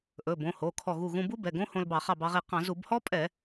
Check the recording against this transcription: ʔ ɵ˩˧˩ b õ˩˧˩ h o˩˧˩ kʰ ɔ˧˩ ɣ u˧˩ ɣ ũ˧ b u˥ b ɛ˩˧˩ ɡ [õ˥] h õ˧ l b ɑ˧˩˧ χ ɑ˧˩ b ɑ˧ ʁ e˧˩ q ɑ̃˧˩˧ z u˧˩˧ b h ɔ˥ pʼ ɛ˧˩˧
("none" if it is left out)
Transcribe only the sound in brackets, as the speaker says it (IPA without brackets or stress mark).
õ˥